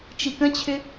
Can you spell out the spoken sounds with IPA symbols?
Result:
t͡ʃ i k ə̃ t͡ɕʰ ʏ

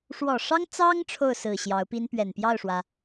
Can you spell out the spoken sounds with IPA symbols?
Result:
ʂ w ɔ˨˩ ʂ ɑ˥ ŋ t͡s ɑ˥ ŋ ʈ͡ʂʰ o˥˩ ʊ̯ s ɹ̩˨˩ ɕ j ɑ˧˥ ʊ̯ p i˥ n p ɥ ɛ˨˩ n p j ɑ˥˩ ʊ̯ ʂ w ä˩

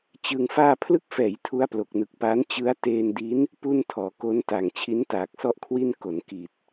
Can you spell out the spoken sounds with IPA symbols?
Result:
t͡ɕ ɯ˧ ŋ f aː˥˩ pʰ l ɯ˦˥ k̚ f ɛː˩˦ j tʰ u˦˥ a̯ p l o˨˩ k̚ n ɯ˨˩ k̚ p aː˦˥ n t͡ɕ ɯ˦˥ a̯ t eː˧ n d i˦˥ n | p u˥˩ n tʰ ɔː˩˦ k o˦˥ n t a˨˩ ŋ t͡ɕʰ i˦˥ n t aː˨˩ k̚ s ɔ˥˩ ʔ kʰ w i˥˩ n k o˩˦ n k i˨˩ t̚

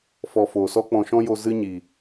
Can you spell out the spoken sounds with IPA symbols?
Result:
f ɔ˨ f oː˨ s ɔ˦ k͡p ɔ̃˧ ʃ ɔ̃˦ j o˧ z ɨ˧ ɲ i˨

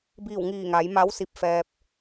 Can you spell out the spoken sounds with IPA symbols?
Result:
b iː˧˩ w ŋ iː˧˩ ŋ a˩˧ j m a˧˥ w s i˧ p̚ f ɛː˧ p̚

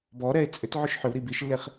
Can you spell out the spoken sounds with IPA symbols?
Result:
b ɔ ɾ ɛ e̯ t͡sʼ ʏ t ʕ ʏ ʃ ħ ʏ w ɾ i b i ʃ lː e χ

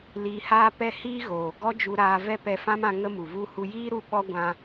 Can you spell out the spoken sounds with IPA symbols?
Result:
l iː˧ h aː˦ p ɛ˦ h iː˦ ɣ oː˨ ɡ ɔ˦ d͡ʒ u˧ ɾ aː˧ v ɛ˦ p ɛ˧ f ã˦ m ã˧ ŋ ə˦ m u˨ v u˦ h u˧ j iː˦ ɾ u˦ ɓ ɔ˦ ɡʷ ã˧

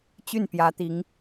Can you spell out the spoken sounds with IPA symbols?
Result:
t͡ɕ y˥˩ n p j ä˧˥ t̪ i˧˥ ŋ

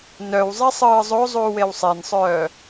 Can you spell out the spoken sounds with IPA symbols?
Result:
n œ w zˤ i sˤ ɯː zˤ o zˤ uː w e w sˤ e n sˤ œː

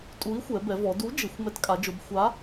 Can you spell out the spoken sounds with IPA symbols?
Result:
tʼ u˨˥ i̯ xʷ ɛ˩˧ b ɛ˩˧ v ɔ˩˧ d u˨˥ d͡ʒ ɪ˩˧ xʷ m ɛ˨˥ t kʼ a˩˧ d͡ʒ o˩˧ b xʷ a˨˥

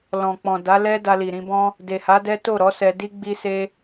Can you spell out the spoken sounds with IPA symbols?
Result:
l ɔ̃˨ k͡p ɔ̃˨ d a˨˦ l ɛ˦ d a˧ l i˨ ɾ ĩ˧ b ɔ̃˦ | d e˨ h a˨˦ d ɛ˦ t o˦˨ ɾ ɔ˨˦ s ɛ˧ d i˦ ɡ͡b i˧ s e˧

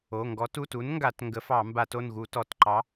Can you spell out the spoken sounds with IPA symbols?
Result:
o˩˧˩ ŋ ɡ ɔ˨˥ t u˩˧˩ t u˨˥ n ŋ ɡ a˧˩˧ t ŋ ɡ ə˨˥ f ɑ˧˩˧ m b a˧˩˧ t o˩˧˩ n ɣ u˧˩˧ t ɔ˧˩˧ t ǃ ɑ˨˥

